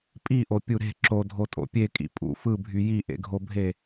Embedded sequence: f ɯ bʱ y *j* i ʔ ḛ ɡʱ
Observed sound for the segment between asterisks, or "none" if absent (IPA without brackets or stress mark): j